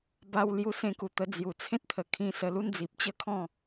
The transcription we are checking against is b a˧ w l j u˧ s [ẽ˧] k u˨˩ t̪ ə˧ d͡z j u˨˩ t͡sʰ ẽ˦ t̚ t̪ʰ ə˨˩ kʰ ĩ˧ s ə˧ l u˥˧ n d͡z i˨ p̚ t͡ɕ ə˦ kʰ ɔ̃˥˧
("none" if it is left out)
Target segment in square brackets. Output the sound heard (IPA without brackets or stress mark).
ẽ˧